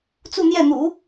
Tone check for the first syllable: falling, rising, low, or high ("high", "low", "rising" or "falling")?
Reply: falling